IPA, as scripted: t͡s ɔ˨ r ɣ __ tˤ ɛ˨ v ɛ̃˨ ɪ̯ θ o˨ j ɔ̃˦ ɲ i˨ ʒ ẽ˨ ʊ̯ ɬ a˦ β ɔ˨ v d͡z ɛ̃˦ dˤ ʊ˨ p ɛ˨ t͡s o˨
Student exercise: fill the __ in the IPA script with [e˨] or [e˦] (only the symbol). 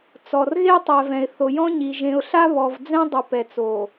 e˦